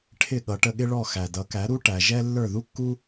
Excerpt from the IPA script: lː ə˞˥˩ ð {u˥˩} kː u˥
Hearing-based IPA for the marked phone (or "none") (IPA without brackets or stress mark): u˥